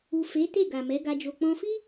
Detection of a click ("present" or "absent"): absent